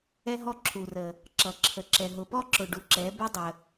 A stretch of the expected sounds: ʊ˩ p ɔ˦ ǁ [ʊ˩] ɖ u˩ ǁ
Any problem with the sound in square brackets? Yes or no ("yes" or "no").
no